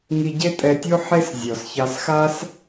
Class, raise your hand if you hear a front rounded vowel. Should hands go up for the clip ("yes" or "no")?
no